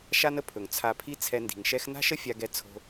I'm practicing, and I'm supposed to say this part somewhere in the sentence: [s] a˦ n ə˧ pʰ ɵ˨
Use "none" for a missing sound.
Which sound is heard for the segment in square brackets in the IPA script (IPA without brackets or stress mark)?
ʃ